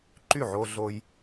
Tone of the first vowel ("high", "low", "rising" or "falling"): falling